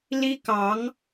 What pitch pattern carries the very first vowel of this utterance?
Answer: high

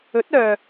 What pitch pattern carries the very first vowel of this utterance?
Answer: rising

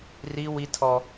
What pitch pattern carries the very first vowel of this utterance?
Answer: high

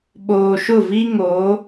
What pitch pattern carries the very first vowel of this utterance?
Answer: low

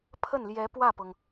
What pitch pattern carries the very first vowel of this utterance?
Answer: falling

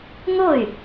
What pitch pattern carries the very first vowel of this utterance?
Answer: falling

